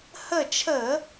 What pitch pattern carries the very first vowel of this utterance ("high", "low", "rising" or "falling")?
falling